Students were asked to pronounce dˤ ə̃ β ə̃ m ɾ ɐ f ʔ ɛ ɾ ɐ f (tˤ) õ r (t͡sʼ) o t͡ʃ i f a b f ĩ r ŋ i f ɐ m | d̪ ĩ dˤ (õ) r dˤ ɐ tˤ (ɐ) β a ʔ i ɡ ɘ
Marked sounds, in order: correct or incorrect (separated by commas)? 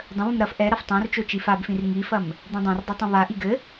correct, incorrect, correct, incorrect